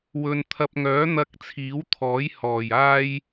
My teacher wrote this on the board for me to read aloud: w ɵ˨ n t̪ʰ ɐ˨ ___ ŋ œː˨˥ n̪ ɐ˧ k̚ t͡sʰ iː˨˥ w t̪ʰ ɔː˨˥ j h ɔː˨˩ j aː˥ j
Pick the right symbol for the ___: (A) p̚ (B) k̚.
A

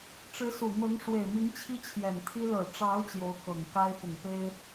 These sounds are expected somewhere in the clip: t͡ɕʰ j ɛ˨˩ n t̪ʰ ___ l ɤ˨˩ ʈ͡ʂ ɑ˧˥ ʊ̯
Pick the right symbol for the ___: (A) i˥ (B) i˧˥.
A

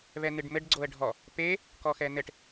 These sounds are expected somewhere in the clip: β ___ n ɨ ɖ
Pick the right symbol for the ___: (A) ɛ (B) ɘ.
A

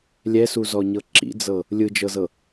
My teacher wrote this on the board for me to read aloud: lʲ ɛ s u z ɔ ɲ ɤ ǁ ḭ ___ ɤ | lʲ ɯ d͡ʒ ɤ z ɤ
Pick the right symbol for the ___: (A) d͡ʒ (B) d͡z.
B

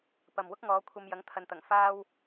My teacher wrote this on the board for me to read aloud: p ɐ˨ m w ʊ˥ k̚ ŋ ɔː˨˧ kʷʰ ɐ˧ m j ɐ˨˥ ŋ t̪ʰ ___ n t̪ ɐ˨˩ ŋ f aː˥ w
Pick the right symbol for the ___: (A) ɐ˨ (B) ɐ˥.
A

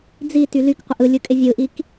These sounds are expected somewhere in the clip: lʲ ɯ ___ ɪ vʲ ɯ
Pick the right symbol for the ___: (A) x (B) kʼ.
B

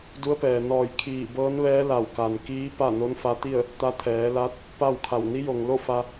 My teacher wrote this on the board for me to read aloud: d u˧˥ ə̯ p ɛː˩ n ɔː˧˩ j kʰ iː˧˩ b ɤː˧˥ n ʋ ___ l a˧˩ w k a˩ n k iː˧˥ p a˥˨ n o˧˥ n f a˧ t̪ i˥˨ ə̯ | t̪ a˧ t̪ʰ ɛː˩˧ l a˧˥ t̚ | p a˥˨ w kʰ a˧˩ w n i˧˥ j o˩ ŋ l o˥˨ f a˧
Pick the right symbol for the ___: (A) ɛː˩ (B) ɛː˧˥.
B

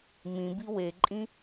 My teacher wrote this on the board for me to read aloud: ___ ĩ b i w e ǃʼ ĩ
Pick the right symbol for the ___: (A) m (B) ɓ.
A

